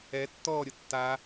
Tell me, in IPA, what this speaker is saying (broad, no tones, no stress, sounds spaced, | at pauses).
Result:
ɛ tː ɔ ɾʲ ʊ tː a